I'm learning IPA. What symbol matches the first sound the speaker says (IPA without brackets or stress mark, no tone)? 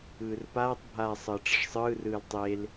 ɯː